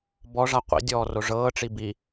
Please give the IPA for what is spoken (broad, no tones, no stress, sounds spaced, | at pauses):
b ɔ ʐ a qʷ ḭ dʲ ɔː r o ʐ ɤː ʈ͡ʂ i b i